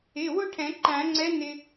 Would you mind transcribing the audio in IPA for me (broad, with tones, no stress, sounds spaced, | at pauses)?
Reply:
ɪ˩˧˩ w ʊ˥˧ ʈʰ ɛ̃˨˩˦ ǃ æ̃˨˩˦ ŋ͡ǀ ɛ˧˥ n ɪ˧